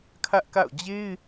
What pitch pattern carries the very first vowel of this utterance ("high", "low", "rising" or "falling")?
high